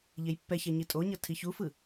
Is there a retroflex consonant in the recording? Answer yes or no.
no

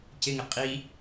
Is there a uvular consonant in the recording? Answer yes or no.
yes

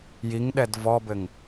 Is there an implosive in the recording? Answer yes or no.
yes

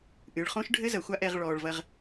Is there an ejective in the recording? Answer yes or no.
no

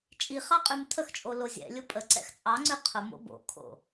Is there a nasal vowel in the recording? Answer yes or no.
no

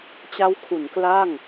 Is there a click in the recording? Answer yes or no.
no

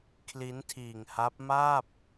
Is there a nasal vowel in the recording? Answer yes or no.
no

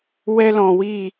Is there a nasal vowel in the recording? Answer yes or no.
yes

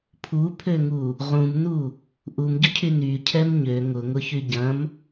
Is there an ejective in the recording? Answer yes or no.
no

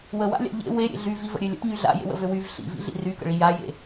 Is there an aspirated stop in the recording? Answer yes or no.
no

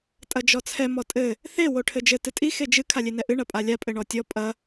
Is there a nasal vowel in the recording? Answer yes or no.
no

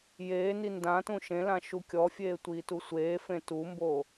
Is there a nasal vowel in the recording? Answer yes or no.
yes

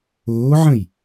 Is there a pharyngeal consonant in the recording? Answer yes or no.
yes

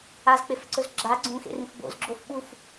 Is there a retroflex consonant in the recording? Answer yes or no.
no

